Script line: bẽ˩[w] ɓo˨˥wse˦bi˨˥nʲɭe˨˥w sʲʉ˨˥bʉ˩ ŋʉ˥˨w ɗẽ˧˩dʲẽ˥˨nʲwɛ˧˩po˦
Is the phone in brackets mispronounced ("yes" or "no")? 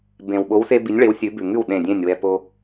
no